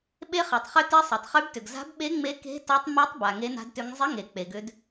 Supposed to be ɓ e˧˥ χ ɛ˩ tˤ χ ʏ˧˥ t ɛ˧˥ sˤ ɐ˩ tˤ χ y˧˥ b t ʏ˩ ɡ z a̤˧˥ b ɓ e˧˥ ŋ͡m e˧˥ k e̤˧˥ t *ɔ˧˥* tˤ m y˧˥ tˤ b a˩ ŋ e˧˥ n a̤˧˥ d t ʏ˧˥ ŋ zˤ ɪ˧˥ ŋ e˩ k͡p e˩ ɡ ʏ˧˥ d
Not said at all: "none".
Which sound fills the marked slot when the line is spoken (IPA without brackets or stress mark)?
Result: ɔ˧˥